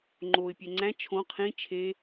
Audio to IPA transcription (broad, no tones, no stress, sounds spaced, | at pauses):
ŋ͡ǃ o ɪ̯ pʲ ɛ ŋ͡ǀ æ̃ t͡ʃʰ õ qʰ ĩ t͡ʃʰ e